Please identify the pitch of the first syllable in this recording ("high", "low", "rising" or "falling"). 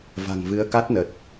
low